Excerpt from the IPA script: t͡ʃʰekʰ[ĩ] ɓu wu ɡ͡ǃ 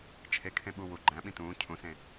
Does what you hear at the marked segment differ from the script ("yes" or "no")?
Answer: yes